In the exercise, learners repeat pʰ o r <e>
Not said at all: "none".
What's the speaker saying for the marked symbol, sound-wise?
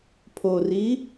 i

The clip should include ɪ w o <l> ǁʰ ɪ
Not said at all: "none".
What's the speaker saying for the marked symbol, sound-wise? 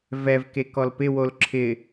l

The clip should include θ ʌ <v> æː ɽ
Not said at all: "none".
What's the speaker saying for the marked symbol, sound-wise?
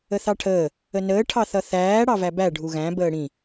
θ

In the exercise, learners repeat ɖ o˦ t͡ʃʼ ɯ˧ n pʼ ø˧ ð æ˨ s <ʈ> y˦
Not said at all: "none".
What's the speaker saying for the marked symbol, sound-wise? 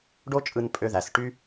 ʈ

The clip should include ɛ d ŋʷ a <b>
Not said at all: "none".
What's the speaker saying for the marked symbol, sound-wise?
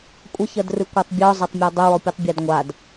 d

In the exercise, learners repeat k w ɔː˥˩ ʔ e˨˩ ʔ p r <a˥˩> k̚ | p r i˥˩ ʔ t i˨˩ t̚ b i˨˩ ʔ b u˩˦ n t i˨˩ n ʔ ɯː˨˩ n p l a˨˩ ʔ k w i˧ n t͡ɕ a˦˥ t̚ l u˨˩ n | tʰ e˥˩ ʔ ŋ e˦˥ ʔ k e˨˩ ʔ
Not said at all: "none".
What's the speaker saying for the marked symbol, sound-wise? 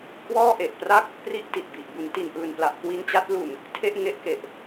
a˥˩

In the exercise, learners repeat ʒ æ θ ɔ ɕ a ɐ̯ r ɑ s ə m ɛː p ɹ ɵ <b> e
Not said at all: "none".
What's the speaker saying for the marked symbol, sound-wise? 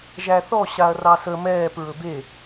b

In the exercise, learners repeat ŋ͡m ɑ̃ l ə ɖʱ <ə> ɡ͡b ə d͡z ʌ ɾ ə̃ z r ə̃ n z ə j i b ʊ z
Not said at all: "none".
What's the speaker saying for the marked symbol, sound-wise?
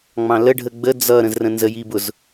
ə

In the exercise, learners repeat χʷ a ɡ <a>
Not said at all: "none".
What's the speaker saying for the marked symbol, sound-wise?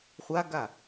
a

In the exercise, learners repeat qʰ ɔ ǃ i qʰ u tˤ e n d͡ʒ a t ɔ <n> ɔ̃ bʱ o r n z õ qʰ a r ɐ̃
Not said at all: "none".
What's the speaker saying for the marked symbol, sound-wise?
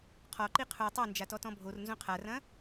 t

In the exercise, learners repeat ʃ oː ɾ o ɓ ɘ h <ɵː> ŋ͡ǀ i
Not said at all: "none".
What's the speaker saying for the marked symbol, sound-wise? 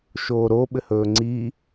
ɵː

